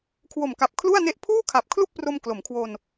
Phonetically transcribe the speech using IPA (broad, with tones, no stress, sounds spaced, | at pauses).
kʰ w o˨˩ m k a˨˩ p̚ kʰ l u˥˩ a̯ n e˥˩ ʔ pʰ uː˥˩ kʰ a˨˩ p̚ kʰ l u˥˩ k̚ p r o˧ m k l o˩˦ m kʰ w o˧ n